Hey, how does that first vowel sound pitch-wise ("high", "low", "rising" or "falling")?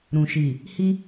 low